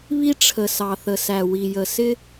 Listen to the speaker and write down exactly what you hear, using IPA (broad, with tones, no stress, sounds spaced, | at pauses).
β i˦ ʈ͡ʂʰ ə˨ s ɑ˨ θ ə˨ s æ˨ w i˨ j ə˨ s ɪ˦